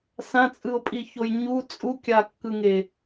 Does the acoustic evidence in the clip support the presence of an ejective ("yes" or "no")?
yes